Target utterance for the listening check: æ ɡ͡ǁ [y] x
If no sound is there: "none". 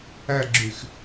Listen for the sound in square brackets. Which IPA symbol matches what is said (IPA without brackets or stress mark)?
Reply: y